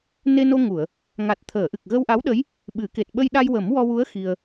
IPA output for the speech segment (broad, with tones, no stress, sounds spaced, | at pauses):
n e˧ n o˧ ŋ u˨˩˨ ə̯ | ŋ a˨˩ t̚ t̪ʰ əː˨˩˨ ʔ ɨ˨˩ k̚ ɣ ə˧ w ʔ a˧˥ w ɗ ə˧˥ j | ɓ ɨ˨˩˦ k e˨˩ t̚ ɓ ə˧ j ɗ a˧ j w ə˨˩˦ m w ɔ˧ w u˧˥ ə̯ x i˧ ə̯